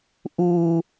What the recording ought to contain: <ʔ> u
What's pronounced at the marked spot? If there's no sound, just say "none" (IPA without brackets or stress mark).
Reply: ʔ